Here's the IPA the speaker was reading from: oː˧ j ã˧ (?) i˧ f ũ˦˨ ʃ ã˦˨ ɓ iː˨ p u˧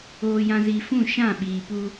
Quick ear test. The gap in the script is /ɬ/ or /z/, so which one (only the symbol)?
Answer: z